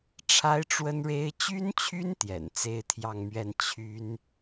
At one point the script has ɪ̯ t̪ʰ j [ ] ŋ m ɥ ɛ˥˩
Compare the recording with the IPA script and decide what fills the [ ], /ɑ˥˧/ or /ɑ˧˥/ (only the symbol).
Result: ɑ˥˧